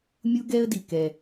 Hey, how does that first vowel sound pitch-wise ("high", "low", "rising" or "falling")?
high